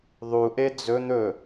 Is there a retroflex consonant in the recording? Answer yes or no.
no